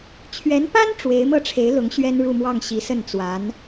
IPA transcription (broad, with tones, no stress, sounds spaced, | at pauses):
t͡ɕʰ ɥ ɛ˧˥ n p a˥ n ʈ͡ʂ w e˧˥ ɪ̯ m ɤ˥˩ ʈ͡ʂʰ e˧˥ ɪ̯ l ʊ˧˥ ŋ ɕ ɥ ɛ˥ n ɻ u˥˧ m w ɑ˥˩ ŋ ɕ i˧˥ s ə˥˩ n t͡s w a˧˥ n